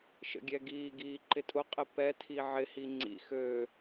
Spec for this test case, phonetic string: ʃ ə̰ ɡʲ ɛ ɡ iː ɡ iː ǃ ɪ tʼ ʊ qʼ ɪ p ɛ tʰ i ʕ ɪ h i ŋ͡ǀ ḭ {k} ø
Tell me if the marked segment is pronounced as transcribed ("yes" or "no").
no